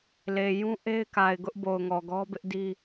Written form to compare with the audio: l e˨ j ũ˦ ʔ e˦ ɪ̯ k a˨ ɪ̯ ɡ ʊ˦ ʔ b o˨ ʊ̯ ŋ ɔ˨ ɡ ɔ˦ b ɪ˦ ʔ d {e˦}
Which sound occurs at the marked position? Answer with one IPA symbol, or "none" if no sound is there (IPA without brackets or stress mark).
i˦